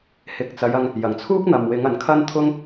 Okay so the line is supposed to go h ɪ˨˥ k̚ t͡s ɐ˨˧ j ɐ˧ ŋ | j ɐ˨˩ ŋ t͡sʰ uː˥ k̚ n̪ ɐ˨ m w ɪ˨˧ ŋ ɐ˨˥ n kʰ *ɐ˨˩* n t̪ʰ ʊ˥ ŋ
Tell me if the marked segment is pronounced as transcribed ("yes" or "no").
no